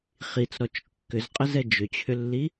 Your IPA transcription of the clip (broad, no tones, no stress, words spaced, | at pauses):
χit͡sɾɔt͡ʃ kːʏzqʼəzɛ d͡ʒʏt͡ɕʰʏlːi